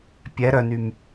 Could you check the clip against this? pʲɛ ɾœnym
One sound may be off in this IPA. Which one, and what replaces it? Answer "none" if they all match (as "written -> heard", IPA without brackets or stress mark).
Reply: none